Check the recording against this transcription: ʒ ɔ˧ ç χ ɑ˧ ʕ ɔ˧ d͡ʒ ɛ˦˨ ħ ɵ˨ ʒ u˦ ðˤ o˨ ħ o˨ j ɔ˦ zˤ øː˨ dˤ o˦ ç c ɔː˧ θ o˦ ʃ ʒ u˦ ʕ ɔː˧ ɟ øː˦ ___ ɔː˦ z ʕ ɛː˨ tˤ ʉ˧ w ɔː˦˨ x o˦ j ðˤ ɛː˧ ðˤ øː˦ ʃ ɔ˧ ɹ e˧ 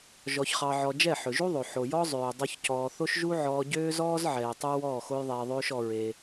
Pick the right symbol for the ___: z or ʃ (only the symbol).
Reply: z